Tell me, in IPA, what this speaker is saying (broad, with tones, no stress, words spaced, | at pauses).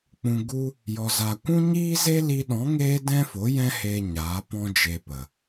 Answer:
k͡pũ˨ɡu˧ | jɔ˨za˨kʷũ˦ ɲiː˦ze˦li˧ɗɔ̃˨˦ ŋeː˦dɛ̃˦fo˨˦ jɛ̃˦heː˧ ɲaː˨˦pɔ̃˦d͡ʒe˧pə˨